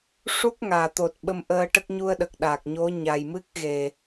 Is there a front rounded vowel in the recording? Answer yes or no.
no